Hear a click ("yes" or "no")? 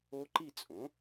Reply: yes